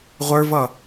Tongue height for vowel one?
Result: mid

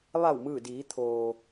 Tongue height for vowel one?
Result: low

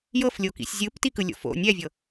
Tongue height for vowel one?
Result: mid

